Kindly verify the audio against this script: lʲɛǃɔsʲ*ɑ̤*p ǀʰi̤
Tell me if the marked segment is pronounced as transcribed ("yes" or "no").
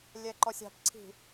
yes